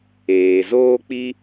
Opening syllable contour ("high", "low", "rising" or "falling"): low